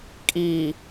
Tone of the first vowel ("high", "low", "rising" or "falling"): low